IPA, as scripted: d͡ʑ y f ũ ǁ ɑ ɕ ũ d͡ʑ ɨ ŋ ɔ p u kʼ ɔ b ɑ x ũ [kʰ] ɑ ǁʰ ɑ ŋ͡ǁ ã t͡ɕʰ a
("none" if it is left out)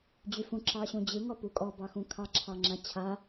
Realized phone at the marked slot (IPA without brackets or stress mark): kʰ